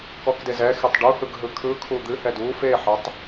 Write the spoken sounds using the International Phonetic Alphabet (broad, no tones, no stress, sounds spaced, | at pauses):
k ɔ k d e z ɛ x e tˤ ɖ u h ɯ ɡ ɦ ɯ kʰ ɯ kʰ u d̪ ɨ h ɛ d u f e ħ ɛ tˤ